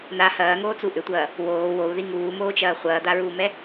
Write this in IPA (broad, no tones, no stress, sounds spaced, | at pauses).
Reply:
n a h ɐː ŋ oː t͡s u ʔ ʏ tʷ ɐː | w oː w o u̯ ð i ŋ uː m oː t͡ʃ ɐː χʷ ɐː d̪ a ɹ uː m ɛ